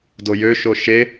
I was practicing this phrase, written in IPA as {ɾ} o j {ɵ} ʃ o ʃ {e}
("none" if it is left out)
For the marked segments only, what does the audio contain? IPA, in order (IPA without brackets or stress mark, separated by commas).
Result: d, ø, e